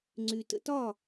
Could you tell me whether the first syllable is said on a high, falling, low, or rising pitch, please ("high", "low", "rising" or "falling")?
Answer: low